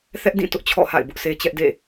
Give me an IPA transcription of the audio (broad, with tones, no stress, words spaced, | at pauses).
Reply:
θɛ˦ʔdĩ˦˨tʊ˦ʔ t͡ɕʰɔ̰˦˨ha̰˦˨ɪ̯bʊ˦ʔ se˦t͡ɕɛ˦ʔdḛ˦˨